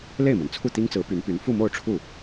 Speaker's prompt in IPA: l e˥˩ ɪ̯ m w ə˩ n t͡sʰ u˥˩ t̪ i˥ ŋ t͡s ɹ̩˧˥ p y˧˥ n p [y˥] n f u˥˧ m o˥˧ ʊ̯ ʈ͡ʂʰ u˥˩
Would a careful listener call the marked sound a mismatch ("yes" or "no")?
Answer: yes